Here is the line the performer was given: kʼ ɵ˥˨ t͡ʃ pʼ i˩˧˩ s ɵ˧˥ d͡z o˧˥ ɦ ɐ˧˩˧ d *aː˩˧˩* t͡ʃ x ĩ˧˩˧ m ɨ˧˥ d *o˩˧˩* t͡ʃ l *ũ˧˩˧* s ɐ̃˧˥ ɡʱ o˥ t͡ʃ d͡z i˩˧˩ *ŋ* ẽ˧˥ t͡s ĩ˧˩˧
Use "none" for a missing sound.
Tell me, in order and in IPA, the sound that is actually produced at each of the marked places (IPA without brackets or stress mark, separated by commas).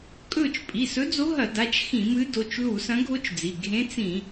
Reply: a˩˧˩, o˩˧˩, u˧˩˧, ɡʱ